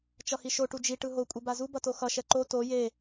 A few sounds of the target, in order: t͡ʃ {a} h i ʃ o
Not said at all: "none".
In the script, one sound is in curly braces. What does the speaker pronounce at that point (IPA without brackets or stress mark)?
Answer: ʌ